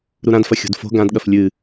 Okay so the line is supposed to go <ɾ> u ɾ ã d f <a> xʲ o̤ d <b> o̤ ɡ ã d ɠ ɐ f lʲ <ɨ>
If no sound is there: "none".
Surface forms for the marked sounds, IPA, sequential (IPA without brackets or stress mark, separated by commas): ɾ, ɐ, f, ɨ